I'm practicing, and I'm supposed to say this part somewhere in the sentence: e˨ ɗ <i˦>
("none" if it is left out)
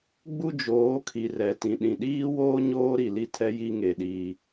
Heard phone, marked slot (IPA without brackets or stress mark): iː˦